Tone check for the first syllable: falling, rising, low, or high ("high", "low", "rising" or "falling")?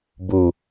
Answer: low